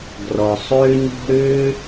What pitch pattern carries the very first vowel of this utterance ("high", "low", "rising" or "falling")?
low